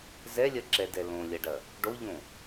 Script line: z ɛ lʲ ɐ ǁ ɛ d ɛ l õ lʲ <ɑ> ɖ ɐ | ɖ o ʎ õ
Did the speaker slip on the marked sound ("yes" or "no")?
yes